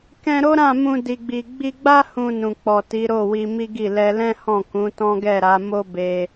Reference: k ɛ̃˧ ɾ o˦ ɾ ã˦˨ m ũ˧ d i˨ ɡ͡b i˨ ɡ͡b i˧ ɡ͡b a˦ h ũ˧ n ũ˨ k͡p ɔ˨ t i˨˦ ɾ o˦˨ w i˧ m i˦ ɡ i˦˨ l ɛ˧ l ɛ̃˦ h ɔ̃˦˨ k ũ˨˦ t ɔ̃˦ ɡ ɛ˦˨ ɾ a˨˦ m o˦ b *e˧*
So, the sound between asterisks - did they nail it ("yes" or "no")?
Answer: yes